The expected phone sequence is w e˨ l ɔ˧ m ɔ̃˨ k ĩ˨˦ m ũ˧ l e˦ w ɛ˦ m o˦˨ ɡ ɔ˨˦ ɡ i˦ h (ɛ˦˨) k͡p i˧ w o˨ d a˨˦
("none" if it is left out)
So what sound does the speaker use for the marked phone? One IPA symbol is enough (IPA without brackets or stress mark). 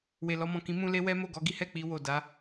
ɛ˦˨